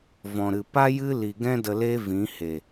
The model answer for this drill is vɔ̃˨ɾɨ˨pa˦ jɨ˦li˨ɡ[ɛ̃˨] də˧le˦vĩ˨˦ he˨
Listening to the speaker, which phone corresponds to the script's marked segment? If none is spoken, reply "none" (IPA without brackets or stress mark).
ɛ̃˦